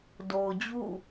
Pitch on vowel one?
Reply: low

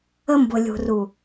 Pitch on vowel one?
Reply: high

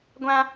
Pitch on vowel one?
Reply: high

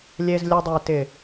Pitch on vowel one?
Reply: low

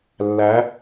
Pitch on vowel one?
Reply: rising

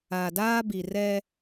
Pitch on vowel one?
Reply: low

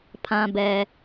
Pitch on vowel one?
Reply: low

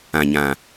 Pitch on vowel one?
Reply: low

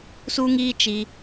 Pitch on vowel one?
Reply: high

